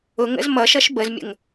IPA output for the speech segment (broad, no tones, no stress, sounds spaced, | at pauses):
ʊ ŋ ə̰ z m ʌ ʃ ʌ ʃ b ə z mʲ ə̰ ŋ